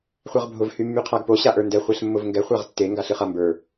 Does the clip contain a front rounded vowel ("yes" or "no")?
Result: yes